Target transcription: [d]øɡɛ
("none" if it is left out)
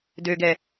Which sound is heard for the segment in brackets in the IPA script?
d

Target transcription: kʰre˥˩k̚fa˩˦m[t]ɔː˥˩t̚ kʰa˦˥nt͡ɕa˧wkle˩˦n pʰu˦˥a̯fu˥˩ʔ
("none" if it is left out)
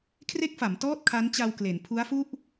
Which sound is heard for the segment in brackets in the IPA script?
t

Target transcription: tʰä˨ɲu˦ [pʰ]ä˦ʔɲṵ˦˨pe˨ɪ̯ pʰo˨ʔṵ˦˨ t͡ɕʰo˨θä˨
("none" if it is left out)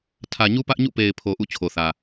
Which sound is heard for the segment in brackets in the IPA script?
p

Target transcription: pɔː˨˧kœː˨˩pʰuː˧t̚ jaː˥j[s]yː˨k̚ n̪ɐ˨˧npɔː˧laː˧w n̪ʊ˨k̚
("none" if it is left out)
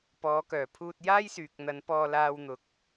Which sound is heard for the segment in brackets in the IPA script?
s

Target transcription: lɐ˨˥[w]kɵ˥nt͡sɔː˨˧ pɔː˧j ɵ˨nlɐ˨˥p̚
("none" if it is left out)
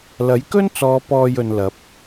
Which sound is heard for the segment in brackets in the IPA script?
j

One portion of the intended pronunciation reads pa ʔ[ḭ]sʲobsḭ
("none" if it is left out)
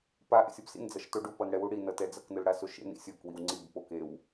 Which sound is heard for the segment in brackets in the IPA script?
ḛ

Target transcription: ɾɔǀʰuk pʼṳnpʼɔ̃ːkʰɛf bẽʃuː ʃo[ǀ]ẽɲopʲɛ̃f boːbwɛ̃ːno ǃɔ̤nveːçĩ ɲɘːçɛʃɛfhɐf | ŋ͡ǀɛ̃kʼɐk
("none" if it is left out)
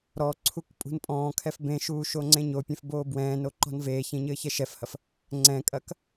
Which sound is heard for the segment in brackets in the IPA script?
ŋ͡ǀ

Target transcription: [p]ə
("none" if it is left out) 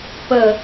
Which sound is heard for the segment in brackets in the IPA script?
p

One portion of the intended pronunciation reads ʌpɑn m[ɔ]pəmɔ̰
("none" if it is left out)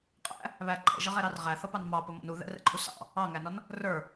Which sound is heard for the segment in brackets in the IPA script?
ɑ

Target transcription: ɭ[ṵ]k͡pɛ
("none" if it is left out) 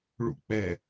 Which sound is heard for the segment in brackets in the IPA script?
ṵ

